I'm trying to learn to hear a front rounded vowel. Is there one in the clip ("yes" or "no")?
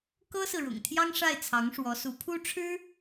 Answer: no